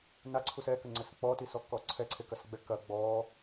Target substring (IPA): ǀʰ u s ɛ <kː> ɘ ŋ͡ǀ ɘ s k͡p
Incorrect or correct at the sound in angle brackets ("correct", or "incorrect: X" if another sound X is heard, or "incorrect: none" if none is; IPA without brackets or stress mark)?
incorrect: k